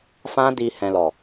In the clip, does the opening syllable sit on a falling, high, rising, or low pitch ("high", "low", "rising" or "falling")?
high